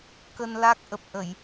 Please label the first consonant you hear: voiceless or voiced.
voiceless